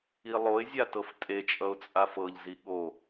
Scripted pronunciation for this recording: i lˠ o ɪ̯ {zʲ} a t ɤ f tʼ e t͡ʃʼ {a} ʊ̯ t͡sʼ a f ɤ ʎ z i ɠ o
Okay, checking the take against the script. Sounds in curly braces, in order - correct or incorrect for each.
correct, incorrect

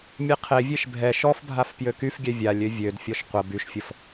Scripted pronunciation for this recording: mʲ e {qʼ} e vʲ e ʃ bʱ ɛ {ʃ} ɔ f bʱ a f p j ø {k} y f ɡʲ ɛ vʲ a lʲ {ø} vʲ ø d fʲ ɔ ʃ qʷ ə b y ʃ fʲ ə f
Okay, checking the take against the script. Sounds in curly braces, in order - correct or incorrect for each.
incorrect, correct, correct, correct

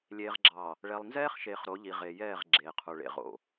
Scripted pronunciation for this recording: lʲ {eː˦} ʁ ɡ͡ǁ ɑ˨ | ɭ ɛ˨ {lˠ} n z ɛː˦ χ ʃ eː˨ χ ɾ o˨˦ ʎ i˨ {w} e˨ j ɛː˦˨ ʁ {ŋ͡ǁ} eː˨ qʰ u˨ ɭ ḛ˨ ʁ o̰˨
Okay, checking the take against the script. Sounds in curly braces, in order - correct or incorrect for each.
incorrect, correct, incorrect, incorrect

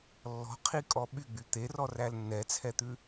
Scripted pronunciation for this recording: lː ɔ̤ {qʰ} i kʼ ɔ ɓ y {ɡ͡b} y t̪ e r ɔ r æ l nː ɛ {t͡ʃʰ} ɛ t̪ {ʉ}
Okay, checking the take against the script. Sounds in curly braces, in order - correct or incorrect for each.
correct, correct, incorrect, correct

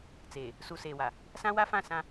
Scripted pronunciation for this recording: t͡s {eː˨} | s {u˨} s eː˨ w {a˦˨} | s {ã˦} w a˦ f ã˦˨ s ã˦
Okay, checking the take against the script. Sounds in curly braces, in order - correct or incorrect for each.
correct, correct, incorrect, correct

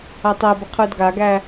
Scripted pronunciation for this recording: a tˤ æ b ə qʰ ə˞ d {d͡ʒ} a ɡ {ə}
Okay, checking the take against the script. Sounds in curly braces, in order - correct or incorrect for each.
incorrect, incorrect

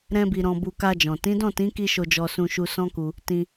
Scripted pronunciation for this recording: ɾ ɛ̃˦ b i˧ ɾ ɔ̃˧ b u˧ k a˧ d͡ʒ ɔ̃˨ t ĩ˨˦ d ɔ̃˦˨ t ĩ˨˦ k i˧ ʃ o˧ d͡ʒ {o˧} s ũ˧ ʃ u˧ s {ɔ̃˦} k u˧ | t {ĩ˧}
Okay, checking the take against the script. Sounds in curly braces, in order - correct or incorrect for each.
incorrect, correct, correct

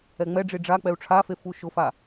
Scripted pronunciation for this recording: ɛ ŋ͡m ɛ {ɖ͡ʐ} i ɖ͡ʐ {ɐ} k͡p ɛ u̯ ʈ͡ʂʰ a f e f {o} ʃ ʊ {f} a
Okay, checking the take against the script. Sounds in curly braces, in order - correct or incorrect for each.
correct, incorrect, incorrect, correct

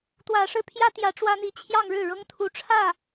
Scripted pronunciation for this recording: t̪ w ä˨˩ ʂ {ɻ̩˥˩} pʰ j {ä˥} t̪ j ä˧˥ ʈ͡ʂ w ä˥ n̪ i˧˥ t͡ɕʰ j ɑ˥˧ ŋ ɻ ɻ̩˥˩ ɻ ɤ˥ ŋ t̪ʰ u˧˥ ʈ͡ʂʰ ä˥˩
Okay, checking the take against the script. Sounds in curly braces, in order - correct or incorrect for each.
correct, correct

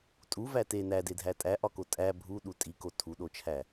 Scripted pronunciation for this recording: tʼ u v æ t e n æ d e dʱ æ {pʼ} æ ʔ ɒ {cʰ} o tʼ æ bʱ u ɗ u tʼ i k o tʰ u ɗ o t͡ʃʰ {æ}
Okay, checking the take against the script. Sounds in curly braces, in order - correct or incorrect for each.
incorrect, incorrect, correct

